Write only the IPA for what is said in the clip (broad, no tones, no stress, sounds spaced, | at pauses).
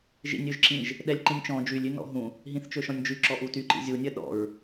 ʒ ḭ nʲ ø ʒ ǁ ĩ ʒ | ɗ ɛ lʲ ǃ ĩ nʲ t͡ʃ ɔ̃ d͡ʒ y lʲ y n ɔ̰ ɦ ũ | ɦ ĩ θ t͡ʃ ø ʃ ɔ̃ nʲ d͡ʒ y ǁ ɔ ʔ u t y ǃ ḭ zʲ u nʲ œ ɗ ɔ̰ ɹ